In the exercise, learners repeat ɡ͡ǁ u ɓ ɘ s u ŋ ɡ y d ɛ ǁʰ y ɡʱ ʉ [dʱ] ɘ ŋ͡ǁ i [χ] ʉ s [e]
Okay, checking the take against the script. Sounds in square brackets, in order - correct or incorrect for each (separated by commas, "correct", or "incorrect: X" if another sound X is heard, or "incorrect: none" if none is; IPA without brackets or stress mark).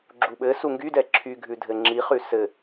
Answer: correct, correct, incorrect: ɘ